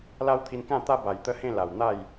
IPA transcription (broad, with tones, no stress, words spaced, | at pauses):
la˦wt̪ʰi˧nkã˥˧t̪a˦ ba˨˩jt̪ə˦hẽ˥˧ la˨˩w n̪a˥˧j